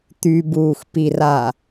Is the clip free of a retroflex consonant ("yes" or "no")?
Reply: yes